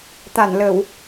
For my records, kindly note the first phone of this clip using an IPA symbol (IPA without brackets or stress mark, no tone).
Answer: t̪